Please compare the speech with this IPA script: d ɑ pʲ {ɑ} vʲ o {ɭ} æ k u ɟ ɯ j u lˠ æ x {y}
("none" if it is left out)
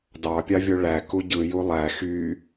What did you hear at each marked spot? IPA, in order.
ɑ, ɭ, y

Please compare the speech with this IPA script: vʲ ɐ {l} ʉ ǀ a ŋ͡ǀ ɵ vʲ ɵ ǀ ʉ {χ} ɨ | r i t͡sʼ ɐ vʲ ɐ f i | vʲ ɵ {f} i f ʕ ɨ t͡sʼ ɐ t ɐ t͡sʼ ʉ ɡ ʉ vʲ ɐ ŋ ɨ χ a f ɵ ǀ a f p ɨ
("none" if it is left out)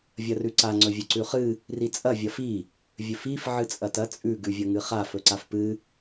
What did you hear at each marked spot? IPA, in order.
r, χ, f

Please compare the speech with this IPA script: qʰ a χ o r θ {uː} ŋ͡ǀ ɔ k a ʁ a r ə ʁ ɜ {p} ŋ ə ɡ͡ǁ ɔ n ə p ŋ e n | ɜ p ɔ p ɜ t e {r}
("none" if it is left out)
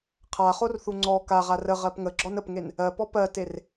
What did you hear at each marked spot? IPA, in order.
u, p, r

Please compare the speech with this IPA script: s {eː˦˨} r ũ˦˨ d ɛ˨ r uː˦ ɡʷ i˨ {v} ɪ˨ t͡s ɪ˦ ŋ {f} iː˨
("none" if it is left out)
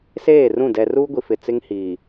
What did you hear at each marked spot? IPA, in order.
eː˦˨, f, h

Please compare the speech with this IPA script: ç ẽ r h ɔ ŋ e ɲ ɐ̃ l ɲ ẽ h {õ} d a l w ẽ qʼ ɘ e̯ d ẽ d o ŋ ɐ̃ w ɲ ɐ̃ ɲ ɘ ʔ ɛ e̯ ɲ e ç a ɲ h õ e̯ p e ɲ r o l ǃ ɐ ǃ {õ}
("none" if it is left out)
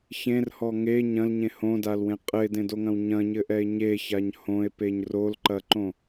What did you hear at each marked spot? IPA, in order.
õ, õ

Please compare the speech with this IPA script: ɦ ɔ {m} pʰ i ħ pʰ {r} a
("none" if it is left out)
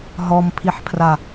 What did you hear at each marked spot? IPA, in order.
m, r

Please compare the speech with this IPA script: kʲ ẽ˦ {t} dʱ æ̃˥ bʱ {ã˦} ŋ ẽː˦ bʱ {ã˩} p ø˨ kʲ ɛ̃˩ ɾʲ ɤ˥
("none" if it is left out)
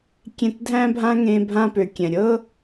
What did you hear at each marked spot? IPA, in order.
t, ã˥, ã˥

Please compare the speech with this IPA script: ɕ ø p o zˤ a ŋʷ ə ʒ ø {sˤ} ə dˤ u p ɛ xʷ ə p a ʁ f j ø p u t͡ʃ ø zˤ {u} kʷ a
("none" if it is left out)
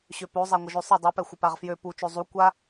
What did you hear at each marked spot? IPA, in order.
sˤ, u

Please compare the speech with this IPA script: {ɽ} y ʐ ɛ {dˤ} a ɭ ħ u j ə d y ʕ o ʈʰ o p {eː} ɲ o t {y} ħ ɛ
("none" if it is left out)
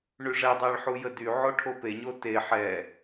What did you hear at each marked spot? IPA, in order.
ɳ, dˤ, e, e

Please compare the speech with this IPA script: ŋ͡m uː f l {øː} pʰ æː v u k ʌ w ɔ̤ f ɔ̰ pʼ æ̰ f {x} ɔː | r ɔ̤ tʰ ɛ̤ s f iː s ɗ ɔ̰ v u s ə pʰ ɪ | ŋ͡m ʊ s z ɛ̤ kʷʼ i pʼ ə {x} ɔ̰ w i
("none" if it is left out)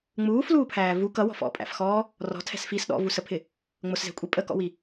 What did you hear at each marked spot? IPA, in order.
uː, x, k

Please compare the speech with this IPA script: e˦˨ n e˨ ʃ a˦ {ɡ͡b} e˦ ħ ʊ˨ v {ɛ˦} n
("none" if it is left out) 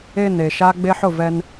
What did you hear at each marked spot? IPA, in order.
ɡ͡b, ɛ˦

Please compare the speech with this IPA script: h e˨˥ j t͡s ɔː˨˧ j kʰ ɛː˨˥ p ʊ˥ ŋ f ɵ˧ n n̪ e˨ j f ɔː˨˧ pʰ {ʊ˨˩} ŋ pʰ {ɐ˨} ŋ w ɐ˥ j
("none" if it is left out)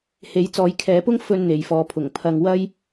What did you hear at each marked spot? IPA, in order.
ʊ˨˩, ɐ˧

